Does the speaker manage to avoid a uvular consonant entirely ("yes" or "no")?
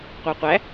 no